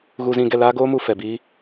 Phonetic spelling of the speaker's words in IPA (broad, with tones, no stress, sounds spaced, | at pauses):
ɣ u˧ z ĩ˧ ɡ ɛ˧ l aː˦ ɡ oː˦ m u˧ f ɛ˨ b iː˦